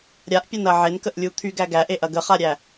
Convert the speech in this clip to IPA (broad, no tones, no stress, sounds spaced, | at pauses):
ɾʲ a ʔ pʲ ɐ n ɐ ʕ e n k ə ʔ lʲ u t̪ʰ y ɡ æ ɡ æ ʔ e ʔ ɐ ɡ ə χ a ɾʲ æ